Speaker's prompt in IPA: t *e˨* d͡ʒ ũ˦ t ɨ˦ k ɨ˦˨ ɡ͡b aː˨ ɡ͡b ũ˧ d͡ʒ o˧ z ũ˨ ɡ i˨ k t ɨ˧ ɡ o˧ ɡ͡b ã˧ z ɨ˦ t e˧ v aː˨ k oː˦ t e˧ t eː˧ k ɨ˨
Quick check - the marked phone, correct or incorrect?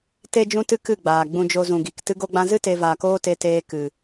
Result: incorrect